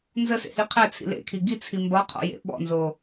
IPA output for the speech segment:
nzəsḛhi qʰæt͡sʰḭ lḛkʰi ɡit͡sʰi mbɒqʰɔ̰jḛ ɓɔ̰nzo

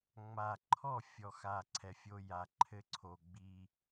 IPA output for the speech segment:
ŋ͡ma˨ǃʰɔ˦˨ fʲɔ˨xa˨ ǀʰɛ˨fʲo˦ja˨ ǃʰɘ˦ǀʰo˨ɡ͡bi˦

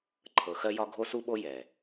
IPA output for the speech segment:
ǃʰɤ˨xɜ˦jɒ˦ ɡʱo˦su˦ɓo˦ jɛ˨

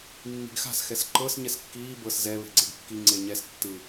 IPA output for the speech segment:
mːi̤ɡxa̤s xɛsǃɤs ɲɛskːiː bɤs zɛ βe̤ɡ͡ǀeɡkːi ŋ͡ǀeɲɛs tːɯ

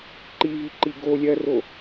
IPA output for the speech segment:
ǃiviǃi ɡolʲɜro

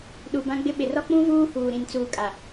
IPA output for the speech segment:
ɗu˨bã˦ɡ͡bɪ˦ɓɪ˨ rɔ˦k͡pũ˦ vuː˦huː˨ ɾĩ˨nt͡suː˨kʼa˨

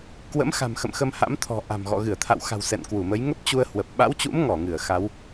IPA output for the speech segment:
kwə̰˧˥mxa̤˨˩m xə̰˧˨mxə˧mha̰˧˥mt̪ʰɔ̤˨˩ ʔa̤˨˩m ɣɔ̰˧˨ ɣɨ˧˩ə̯t̪ʰa̰˧˨wxa̤˨˩w sɛ̰˧˨nkwu˧˩mə˨˦j ŋə˦˥p̚t͡ɕu˧ə̯hwə˨˩p̚ ɓa̰˧˥wt͡ɕṵ˧˥m ŋɔ˧˩ ŋɨ˧˩ə̯xa˨˦w

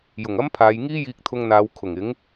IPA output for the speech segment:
jʊ˨˩ŋɐ˥mpʰaː˨˧jŋiː˥ jiː˧k̚t̪ʰʊ˧ŋn̪aː˨˧w kʰʊ˨˩ŋɪ˨˥ŋ

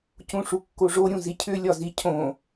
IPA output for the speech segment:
cũʂukːoʐo ɾʲũzicʰʏ lʲɒzicʰõ

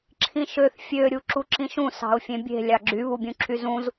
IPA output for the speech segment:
ǁʰĩʃøθ fʲø ɾʲuǁuǁĩʃũ sɑ̤ʊ̯fʲẽbʲe̤ lʲɑɡ͡ǁy βubʲũǁʰyzũz

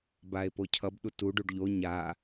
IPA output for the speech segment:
bae̯pocʰʌb ɗutuɖ uɖʎo ɲa

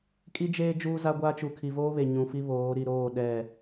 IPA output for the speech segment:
kʼi˦d͡ʒeː˦ d͡ʒuː˦za˦ɡʷaː˦ t͡ʃu˨kʰi˨voː˦βe˨ ɲũ˨fi˦ βoː˨˦ ɾi˨ɾoː˦˨ ɗɛ˦˨

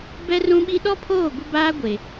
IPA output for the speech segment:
bɛ˦rũ˦ɓi˦ ɗɔ˦pʰoː˦˨ ɡʷɪ˦baː˦ ɡʷe˨

